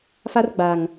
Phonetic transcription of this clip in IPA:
f a˦ r ɡ͡b a˨ ŋ

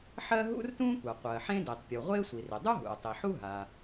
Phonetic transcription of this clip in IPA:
ħ ɜ˥ ɦ ṵ˥ r t ũ˥ kʷ a˩ qʷ ɜ˩ ħ ẽ˥ d i˩ tˤ pʲ u˩ ʁʷ ɪː˥ sʷ i˩ r ɪ˩ dˤ u˥ ɦ ṵ˩ o̯ tˤ i˩ ħ u˥ ɦ a˩

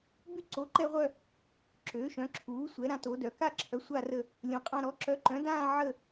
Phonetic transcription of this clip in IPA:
b y˦˨ ǀ o˩˥ ǃ ɛ˦˨ ʁʷ œ˦˨ | ǁ ø˩˥ ʃ œ̃˩˥ ǁʰ uː˩˥ sʷ ɛ˩˥ ɾ ã˩˥ t o˩˥ d œ˩˥ k a˦˨ ǁʰ œ˩˥ sʷ a˦˨ r ə˦˨ | lʲ õ˩˥ qʼ ã˦˨ ɾ ɔ˩˥ ǁ œ˩˥ ǃ œ̃˩˥ d ãː˦˨ ʕ ə˦˨

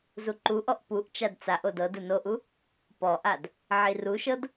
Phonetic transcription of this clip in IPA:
z u ǃ u ʔ ɔ ʔ p u ʔ t͡ʃ a d t͡s a ʔ o d ɤ d ɯ n o ʔ u | p ɔ ʔ a d | ʕ i r u ʃ ɤ d

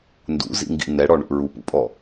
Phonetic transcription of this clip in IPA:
n d ṵ z ḭ ŋ ɡ ḭ n ɛ ɽ ɔ ɳ ṵ ɹ u p ṵ pʼ ɔ

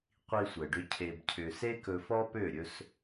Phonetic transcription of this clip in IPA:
qʷ i˧ sʷ ɛ˨ ɖ ʏ˧ cʰ e˧ b cʰ ʏ˧ s e˦ k ɵ˧ f ɔ˦ p ø˦˨ ɾʲ ɵ˦ s

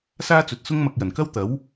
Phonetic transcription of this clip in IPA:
s aː˥ t͡s ɵ˨˥ t̚ s ʊ˥ ŋ m ɐ˧ k̚ j ɐ˨˩ n k ɐ˥ w t̪ ɐ˨˥ w

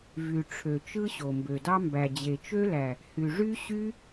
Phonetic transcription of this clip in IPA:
v y˨ ʈ͡ʂʰ ø˨ t͡ʃ ɯ˦ ɕ o˨ m b ø˨ d ɑ˦ m b æ˨ d͡ʑ e˨ t͡ʃ ø˦ l æ˨ | h y˨ ʐ y˦ ɕ y˦

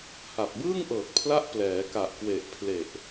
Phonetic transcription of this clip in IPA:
h a˨˩ p̚ b ɯː˥˩ ŋ ʔ ɤː˨˩ k̚ pʰ l a˦˥ ʔ p l ɛː˩˦ k a˨˩ ʔ k w e˨˩ ʔ pʰ l e˨˩ ʔ

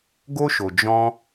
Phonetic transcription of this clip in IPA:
ɡ o˦ ʃ o˨ d͡ʒ ɔ̃˧

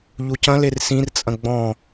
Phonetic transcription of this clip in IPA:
ʎ u c ɐ̃ l e r s ĩ r t͡sʼ ɐ̃ ɡ͡b ɔ̃

